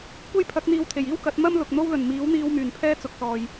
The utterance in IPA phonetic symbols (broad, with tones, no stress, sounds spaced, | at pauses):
kʷ e˥ j pʰ ɐ˨˥ k̚ n̪ iː˧ w t̪ʰ e˨˩ j iː˥ w k ɐ˨˥ t̚ m ɐ˥ m l ʊ˨ k̚ n̪ o˥ w l ɵ˨˩ n m iː˨˥ w n̪ iː˧ w m yː˨˩ n pʰ ɛː˥ t͡s ʊ˨ k̚ s ɔː˨ j